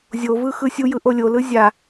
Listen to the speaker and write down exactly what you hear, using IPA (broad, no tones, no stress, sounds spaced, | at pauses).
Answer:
zʲ o v ɯ x ɯ sʲ u j ɯ ʔ o lʲ o l ɯ zʲ a